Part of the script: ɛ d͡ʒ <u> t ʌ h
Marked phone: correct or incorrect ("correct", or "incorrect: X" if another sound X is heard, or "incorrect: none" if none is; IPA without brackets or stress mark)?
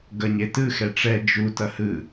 correct